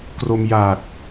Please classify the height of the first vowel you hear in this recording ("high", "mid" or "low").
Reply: mid